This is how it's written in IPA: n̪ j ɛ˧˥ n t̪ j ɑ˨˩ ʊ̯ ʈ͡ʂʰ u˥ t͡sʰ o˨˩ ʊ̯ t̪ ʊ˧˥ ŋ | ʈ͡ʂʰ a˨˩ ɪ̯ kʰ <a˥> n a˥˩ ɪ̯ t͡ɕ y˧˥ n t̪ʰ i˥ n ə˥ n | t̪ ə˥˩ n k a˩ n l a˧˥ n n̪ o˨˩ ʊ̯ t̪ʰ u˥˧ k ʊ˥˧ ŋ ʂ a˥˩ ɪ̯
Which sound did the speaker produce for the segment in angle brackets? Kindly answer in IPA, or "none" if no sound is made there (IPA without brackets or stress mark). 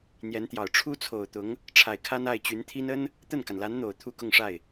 a˥